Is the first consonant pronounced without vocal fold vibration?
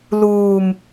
no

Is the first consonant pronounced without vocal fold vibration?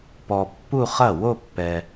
yes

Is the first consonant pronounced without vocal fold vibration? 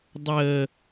no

